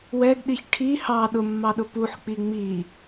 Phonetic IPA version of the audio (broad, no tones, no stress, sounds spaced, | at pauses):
w ɛ ɡ ɗ i ç ʈʰ i h ɑ ɗ ʊ mː ɑ ɗ ʊ p u ħ k͡p i ŋ͡m i